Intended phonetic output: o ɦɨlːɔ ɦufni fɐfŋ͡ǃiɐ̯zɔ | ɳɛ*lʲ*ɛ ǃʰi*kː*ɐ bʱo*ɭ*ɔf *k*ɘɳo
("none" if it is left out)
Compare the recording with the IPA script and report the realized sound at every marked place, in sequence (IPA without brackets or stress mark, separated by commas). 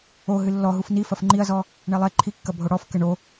lˠ, kː, ɽ, k